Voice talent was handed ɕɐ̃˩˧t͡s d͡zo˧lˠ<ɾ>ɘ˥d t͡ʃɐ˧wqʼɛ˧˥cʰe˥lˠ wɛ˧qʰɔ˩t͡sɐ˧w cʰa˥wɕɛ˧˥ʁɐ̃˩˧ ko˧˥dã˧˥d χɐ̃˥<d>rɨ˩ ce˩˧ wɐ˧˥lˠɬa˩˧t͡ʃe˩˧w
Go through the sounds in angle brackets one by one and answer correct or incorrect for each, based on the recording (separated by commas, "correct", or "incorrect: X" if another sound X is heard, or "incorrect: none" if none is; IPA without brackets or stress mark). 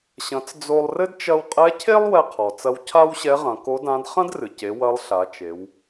incorrect: r, correct